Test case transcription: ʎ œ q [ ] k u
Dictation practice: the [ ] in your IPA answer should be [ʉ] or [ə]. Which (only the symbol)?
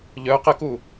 ə